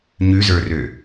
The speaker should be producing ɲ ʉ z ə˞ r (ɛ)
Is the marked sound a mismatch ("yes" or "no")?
yes